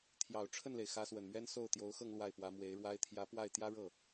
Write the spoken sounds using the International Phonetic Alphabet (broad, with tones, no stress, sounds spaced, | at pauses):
t̪ʰ j ɑ˨˩ ʊ̯ ʈ͡ʂʰ ə˥˩ n l e˩ ɪ̯ x ä˧˥ s w ə˨˩ n m ɥ ɛ˥ n s o˥˩ ʊ̯ t̪ j o˧˥ ʊ̯ x ɤ˥˧ ŋ l w a˥˩ ɪ̯ p w ä˧˥ m w e˧˥ ɪ̯ ɻ w a˥ ɪ̯ t̪ʰ j ä˧˥ p w a˥˩ ɪ̯ t̪ j ä˥ ɻ ɤ˥˩